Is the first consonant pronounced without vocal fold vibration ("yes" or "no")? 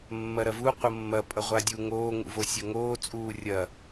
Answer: no